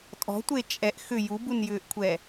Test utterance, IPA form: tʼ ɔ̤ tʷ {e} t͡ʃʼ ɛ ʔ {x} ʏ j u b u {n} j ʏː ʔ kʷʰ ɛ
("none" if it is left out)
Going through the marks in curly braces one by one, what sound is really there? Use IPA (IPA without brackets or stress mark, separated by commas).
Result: e, x, n